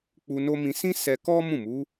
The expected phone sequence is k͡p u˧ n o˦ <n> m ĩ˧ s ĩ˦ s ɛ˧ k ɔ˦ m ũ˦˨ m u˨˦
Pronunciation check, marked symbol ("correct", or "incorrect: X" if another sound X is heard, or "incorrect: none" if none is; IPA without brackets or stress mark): incorrect: none